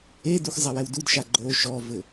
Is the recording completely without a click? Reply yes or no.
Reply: no